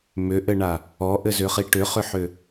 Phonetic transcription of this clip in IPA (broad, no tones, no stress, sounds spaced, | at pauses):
m ʏ ʔ ɘ ɳ a | ɔ ʔ ɘ z ʏ χ i ʈ ʏ χ ʏ ħ ʏ